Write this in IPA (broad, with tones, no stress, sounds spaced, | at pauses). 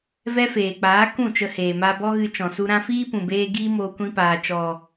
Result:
v ɛ˦ f eː˨ k͡p aː˨˦ k ũ˦˨ t͡ʃ ə˧ h eː˨ m a˧ b ɔ˦ ɣ ɨ˧ t͡ʃ ɔ̃˨ s u˧ ɾ ã˧ f iː˦ p ũ˨ b eː˧ ɡ iː˦ m oː˧ kʷ ĩ˧ p aː˨ t͡ʃ ɔ˨